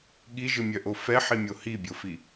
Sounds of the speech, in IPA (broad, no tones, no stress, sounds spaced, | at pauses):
ɠ i ʒ ɯ mʲ œ ʔ o f ɛ ħ i mʲ o h i bʲ o f i